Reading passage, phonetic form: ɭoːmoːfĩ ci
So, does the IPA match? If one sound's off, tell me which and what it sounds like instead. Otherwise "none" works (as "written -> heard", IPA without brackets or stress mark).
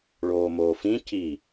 none